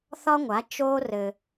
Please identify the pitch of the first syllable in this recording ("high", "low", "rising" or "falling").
high